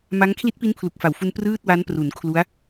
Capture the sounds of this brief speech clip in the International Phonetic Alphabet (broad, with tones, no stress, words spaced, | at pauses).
ma˦˥ŋ kʰli˦˥t̚pi˦˥npʰlu˨˩k̚ fa˨˩wfu˧n prɯː˥˩t̚wa˦˥npru˩˦n kʰlu˦˥a̯